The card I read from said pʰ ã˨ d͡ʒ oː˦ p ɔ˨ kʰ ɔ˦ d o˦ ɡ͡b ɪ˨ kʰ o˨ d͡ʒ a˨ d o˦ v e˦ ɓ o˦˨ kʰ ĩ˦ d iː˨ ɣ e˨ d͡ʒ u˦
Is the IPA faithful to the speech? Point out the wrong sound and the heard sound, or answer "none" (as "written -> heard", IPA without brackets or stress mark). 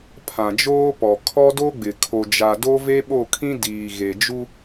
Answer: none